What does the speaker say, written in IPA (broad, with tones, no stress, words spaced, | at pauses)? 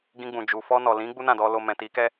ɡĩ˧ɡ͡bũ˨d͡ʒu˨ fɔ˧nɔ˨lĩ˨˦ ɡ͡bu˦nã˦˨dɔ˧ lo˧ mɛ̃˨ti˨˦kɛ˦